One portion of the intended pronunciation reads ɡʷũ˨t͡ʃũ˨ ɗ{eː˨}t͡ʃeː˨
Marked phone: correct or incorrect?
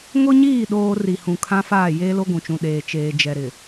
correct